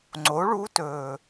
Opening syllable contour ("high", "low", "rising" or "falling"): rising